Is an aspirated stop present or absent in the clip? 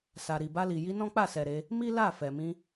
absent